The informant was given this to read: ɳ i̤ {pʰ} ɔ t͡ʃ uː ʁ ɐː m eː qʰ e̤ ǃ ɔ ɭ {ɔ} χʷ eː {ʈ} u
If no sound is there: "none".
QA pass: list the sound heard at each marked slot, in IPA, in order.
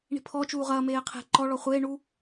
pʰ, ɔ, ɳ

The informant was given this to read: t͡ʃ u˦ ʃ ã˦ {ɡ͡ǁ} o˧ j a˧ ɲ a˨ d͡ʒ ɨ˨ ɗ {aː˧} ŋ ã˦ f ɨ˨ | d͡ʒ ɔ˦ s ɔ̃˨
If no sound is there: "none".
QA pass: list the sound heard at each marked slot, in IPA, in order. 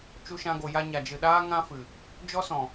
ɡ, aː˦

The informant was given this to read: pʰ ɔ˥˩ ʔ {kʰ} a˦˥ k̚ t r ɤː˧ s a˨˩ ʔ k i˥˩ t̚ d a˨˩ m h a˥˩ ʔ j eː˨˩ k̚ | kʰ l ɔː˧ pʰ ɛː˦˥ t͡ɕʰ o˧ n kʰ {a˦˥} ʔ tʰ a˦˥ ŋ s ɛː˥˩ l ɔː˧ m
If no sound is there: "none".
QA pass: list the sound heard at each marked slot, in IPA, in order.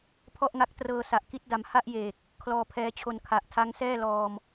ŋ, a˨˩

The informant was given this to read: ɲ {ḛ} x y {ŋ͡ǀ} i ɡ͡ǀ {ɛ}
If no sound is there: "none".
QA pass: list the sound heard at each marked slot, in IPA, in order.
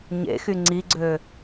ḛ, ŋ͡ǀ, ø

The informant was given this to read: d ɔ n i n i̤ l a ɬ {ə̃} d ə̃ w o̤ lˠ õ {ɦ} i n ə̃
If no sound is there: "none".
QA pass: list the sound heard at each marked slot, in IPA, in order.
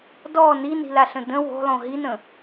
ə̃, ɦ

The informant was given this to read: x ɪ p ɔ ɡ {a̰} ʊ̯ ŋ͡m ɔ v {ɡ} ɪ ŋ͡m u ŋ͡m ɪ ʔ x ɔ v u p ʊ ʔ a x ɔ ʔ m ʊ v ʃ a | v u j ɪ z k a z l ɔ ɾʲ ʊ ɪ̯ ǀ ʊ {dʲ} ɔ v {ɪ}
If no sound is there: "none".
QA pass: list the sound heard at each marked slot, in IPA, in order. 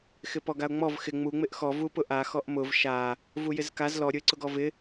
a, x, ɡ, ɪ

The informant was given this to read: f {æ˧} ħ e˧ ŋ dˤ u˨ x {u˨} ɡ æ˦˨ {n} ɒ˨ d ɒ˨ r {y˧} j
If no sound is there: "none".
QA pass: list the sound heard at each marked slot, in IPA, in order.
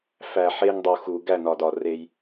æ˨, u˨, n, e˧

